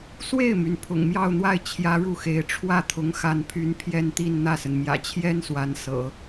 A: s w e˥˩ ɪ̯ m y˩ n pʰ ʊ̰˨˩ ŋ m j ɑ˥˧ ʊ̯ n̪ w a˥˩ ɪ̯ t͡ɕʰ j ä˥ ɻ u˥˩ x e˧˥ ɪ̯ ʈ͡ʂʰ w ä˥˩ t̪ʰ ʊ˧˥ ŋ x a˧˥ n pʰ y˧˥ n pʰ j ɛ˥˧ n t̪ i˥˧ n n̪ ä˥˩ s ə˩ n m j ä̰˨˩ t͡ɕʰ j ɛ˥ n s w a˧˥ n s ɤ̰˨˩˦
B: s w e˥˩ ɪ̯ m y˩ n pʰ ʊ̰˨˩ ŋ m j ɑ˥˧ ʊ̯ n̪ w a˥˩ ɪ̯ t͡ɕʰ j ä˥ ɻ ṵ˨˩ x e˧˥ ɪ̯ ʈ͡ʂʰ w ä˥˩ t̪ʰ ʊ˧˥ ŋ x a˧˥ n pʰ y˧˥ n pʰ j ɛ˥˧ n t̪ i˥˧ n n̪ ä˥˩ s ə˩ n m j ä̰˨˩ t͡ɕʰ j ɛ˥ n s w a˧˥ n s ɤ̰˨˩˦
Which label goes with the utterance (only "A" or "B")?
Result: A